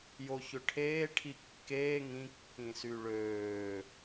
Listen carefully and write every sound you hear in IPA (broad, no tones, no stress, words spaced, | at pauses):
joçøʈʰeː ʈʰikːeː ŋĩ kːĩsyɭøː